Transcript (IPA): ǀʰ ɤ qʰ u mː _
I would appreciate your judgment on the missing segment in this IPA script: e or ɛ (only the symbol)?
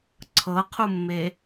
e